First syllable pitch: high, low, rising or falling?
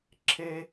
high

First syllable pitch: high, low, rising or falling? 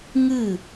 falling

